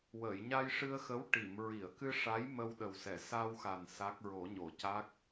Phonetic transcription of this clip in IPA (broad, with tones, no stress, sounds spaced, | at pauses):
w əː˨˩˨ j ɲ a˧ j ʂ ɨ˧ ə̯ x ə˧˥ w ʈ i˨˩˨ m ɹ i˨˩˨ ə̯ k ɨ˧ ʂ a˧˥ j m ə˧ w ɗ ə˨˩ w s ɛ˨˩˨ s a˧ w x a˨˩ n s a˦˥ k̚ ɹ o˨˩˦ ɲ o˨˩˨ c a˦˥ k̚